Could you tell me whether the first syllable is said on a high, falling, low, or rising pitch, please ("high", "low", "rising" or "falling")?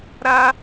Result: high